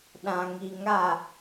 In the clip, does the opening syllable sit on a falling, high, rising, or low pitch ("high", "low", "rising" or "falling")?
low